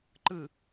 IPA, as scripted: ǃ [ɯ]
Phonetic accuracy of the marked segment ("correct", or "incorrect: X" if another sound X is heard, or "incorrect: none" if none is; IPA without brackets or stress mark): correct